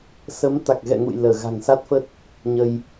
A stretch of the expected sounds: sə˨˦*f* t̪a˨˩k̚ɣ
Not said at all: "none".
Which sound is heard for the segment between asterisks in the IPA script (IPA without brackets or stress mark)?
m